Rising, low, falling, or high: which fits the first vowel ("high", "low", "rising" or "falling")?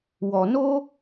low